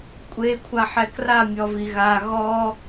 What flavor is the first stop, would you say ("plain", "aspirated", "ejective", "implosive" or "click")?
ejective